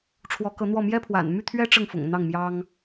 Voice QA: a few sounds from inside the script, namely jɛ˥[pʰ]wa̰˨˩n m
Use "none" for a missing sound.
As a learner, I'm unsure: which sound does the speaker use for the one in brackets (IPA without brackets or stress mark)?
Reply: pʰ